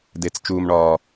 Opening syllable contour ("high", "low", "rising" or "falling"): falling